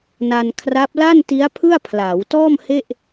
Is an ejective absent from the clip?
yes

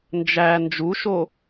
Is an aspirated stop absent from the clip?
yes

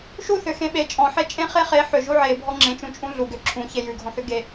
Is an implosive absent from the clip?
no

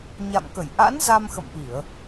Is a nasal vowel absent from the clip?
yes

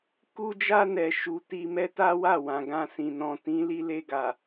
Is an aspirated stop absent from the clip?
yes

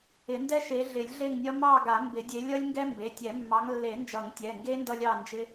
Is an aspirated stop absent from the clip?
yes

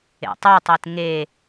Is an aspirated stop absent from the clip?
yes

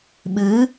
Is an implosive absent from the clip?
no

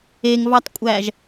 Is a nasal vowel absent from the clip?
yes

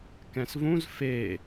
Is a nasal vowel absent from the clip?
no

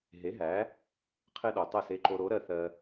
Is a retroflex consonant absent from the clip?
yes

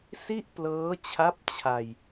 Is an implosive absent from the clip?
yes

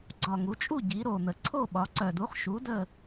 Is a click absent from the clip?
no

